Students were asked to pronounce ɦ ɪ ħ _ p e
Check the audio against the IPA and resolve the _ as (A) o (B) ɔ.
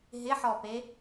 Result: B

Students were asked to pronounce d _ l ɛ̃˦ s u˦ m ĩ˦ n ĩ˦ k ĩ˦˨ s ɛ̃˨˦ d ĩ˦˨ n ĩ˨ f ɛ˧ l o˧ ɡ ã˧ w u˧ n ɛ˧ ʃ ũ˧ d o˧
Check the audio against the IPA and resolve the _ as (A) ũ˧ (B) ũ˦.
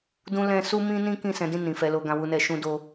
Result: B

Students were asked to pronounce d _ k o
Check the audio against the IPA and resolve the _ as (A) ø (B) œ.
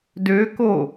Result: A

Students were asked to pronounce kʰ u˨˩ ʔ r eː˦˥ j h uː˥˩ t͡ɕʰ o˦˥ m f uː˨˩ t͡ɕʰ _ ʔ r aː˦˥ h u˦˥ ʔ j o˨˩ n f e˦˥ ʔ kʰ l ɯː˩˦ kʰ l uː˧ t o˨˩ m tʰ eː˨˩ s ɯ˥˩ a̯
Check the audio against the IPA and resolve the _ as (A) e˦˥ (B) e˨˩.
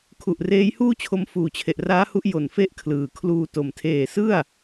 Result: B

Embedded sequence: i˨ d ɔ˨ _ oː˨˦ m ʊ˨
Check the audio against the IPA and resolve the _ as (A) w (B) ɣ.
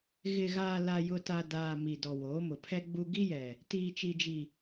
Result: A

